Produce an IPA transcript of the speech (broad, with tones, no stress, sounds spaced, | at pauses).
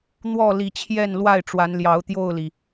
n̪ w ɔ˥˨ l i˨˦ t͡ɕʰ j ɛ˥˨ n l w a˥˨ ɪ̯ ʈ͡ʂ w a˨˦ n l j ɑ˨˦ ʊ̯ t̪ j o˥˨ ʊ̯ l i˩